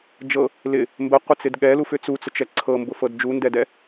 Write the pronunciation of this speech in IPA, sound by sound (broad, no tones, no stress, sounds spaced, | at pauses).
d͡ʒ ɤ | l ɪ | m b ə qʷ ə t͡s ɪ d ɠ ɛ l u f ʏ t͡s u t͡s ʊ t͡ʃ ɛ ǀʰ ɤ m b ʊ f ɤ d d͡ʒ u n d ɛ d ɛ